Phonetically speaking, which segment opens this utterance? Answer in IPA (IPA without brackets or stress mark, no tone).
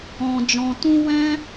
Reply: ɔ̃